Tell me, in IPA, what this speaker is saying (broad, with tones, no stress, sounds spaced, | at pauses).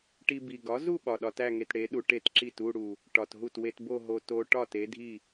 ʈ i˧ b i˨˩ ɡ ɒ˨˥ z u˥˧ ɓ ɒ˨˩ ɗ ɒ˧ t æ˥˧ ŋ e˧ t ɽ e˨˥ ɗ u˧ ʈ e˥˩ t ǁ i˥˩ t u˥˧ ɽ u˨˩ | ʈ ɒ˨˩ t ɦ u˥˩ t w e˧ t b o˥˧ ɦ o˧ t o˧ ʈ ɒ˥˩ t e˨˥ dʱ i˥˩